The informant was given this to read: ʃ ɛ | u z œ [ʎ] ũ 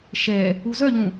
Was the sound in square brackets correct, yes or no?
yes